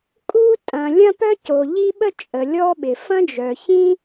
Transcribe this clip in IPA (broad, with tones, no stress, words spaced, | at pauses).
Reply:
kʼu˥ tʼɐ̃˩ lʲɐ̃˥pœ˥co˩ ʎi˥ɓə˥ t͡ʃʼə˩ lʲɔ˥ɓɪ˩ fɐ̃˥d͡ʒœ˩çĩ˥